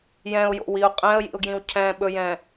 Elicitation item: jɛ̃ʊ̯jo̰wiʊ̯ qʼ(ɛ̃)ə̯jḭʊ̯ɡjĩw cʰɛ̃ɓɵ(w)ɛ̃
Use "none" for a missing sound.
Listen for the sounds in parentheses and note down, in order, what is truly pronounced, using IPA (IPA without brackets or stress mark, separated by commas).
ɛ̃, j